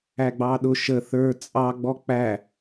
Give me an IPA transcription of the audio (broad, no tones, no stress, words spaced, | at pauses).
æɡ͡bɑɗʊ ʃə θə˞ t͡sʼɑɡ͡bɔ k͡pæ